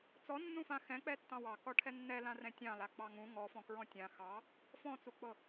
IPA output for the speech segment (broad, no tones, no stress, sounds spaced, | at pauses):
t͡s ɔ nː ũ f ã x ɛ̃ k͡p ɛ tː ɑ̃ w ɑ k ɔ ʈʰ ɛ nː ɛ l ã r ɛ̃ tʲ ɑ̃ l a k͡p ɑ ŋ ũ ŋ ɔ f ɔ̃ k ɹ ɔ̃ tʲ ã x ɑ | f ɔ̃ t͡s u k͡p ɤ